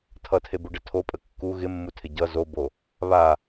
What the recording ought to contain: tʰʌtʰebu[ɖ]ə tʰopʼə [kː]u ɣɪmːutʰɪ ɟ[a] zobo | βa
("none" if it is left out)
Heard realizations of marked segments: ɖ, kː, ʌ

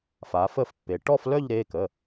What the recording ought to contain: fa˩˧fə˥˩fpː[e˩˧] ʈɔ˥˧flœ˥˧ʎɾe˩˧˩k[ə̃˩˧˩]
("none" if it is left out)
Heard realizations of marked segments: e˩˧, ə˩˧˩

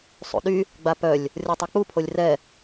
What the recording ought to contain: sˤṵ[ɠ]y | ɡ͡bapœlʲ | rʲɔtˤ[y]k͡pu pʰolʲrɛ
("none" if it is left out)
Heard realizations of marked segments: ɗ, ø

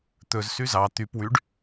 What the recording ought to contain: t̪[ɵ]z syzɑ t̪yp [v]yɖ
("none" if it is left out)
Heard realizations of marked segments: ɵ, w

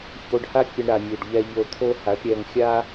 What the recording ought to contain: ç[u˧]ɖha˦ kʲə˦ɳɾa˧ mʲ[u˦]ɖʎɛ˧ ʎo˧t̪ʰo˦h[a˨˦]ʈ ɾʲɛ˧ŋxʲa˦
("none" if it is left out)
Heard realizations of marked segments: o˧, u˨, a˨˦

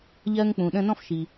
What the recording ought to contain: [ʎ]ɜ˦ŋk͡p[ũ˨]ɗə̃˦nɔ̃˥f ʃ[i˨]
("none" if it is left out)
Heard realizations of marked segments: ʎ, ũ˨, i˨

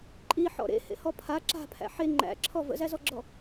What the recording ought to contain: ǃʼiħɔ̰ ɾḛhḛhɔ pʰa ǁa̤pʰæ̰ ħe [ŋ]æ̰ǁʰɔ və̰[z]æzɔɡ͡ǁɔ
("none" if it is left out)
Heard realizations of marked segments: ŋ͡ǃ, z

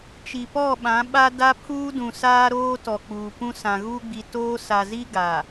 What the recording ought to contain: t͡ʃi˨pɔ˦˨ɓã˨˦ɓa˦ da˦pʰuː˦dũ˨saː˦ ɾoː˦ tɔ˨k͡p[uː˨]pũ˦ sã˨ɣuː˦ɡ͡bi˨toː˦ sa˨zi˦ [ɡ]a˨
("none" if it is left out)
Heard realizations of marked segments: uː˨, ɡ

